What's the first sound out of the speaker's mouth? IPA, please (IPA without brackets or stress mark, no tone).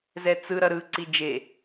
z